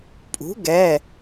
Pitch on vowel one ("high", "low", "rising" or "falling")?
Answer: rising